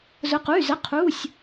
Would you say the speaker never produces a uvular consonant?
no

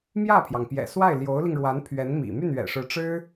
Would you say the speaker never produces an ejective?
yes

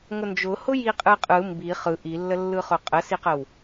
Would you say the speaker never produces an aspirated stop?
yes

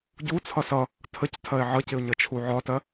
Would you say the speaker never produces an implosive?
yes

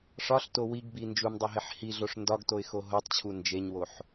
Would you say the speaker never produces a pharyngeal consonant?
no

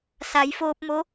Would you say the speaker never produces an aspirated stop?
yes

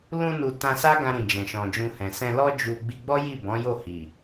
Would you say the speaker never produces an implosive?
yes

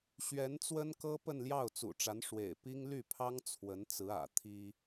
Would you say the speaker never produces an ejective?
yes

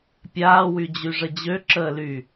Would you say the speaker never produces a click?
no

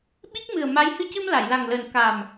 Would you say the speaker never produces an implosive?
no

